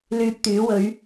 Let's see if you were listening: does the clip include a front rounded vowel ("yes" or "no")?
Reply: yes